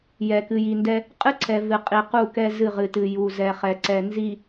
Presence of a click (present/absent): present